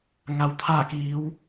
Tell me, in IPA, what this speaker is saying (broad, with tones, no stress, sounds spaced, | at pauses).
ŋ a˩ w t̪ʰ aː˧˩ k iː˩˧ w